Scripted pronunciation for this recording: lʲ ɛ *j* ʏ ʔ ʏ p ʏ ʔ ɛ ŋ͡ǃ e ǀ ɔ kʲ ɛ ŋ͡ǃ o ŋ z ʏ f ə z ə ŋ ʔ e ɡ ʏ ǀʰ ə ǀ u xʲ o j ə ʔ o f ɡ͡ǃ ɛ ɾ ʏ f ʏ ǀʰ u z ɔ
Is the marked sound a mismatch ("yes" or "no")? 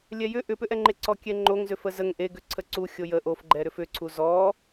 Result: no